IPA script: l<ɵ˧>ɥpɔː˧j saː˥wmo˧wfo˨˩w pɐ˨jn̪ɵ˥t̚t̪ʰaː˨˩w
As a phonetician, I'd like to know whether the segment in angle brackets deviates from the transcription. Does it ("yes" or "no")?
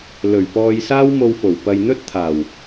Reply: yes